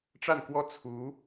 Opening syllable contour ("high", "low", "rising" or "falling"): falling